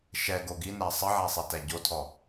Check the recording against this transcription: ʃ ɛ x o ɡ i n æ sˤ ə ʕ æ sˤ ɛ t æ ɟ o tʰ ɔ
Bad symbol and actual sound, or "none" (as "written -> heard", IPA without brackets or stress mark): x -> ɡ